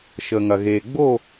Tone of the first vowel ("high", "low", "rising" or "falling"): low